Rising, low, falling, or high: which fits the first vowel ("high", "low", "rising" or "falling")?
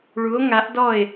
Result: rising